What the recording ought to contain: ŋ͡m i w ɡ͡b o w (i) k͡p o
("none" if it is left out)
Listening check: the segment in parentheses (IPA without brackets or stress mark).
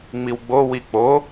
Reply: i